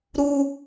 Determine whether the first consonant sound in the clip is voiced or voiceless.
voiced